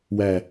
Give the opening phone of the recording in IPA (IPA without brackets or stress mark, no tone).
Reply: w